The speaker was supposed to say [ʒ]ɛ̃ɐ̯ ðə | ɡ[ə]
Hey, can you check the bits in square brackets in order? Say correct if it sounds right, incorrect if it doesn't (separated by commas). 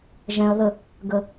correct, correct